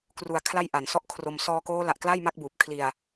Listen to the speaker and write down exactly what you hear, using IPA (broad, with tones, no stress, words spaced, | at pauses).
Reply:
kru˧a̯kʰla˥˩j ʔa˨˩nsɔ˥˩ʔkʰro˧m sɔː˧koː˦˥la˨˩ʔ kla˥˩jma˦˥k̚buː˨˩p̚kʰli˧a̯